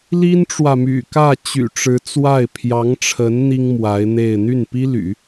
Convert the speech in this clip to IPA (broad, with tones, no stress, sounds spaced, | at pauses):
l i˥ n ʈ͡ʂ w ä˨ m y̰˨˩ k ä˥˩ t͡ɕ y̰˨˩ ʈ͡ʂ ɻ̩˧˥ t͡s w a˥˩ ɪ̯ pʰ j ɑ˧˥ ŋ ʈ͡ʂʰ ə˧˥ n n̪ i˥ ŋ m w a˧˥ ɪ̯ n̪ e˥˧ ɪ̯ n̪ y˥˩ n p i˥ l y̰˨˩˦